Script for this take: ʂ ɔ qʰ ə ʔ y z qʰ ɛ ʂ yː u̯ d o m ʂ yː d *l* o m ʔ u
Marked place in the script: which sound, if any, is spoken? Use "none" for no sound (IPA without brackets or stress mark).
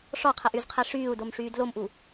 l